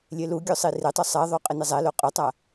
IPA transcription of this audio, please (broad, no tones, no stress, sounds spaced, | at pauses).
lʲ e l u ɡʲ o sˤ i r ɪ tˤ ʊ sˤ ɛ ðˤ o qʼ ɪ n ɪ zˤ ɛ l o qʼ ʊ tˤ a